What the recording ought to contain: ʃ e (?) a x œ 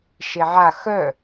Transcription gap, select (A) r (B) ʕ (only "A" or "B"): B